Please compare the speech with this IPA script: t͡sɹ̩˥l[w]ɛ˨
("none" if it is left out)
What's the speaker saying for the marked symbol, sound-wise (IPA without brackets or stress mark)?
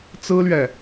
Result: ɥ